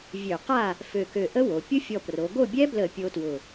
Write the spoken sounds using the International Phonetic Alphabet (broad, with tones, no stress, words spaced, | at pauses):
vʲø˧˩˧qa˥˨ | fø˧˩kø˧˩ʔə˦˥ wo˩˧ pʲʊ˦˥fʲɔ˧˩pro˩˧ ɡo˥˨ bʲɛ˦˥blə˧˩˧ pʲo˦˥twʊ˧˩